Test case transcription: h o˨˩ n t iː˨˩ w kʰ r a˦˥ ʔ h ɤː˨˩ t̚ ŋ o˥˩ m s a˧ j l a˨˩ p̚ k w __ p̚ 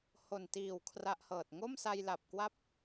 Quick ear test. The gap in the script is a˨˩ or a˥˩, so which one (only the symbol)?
a˥˩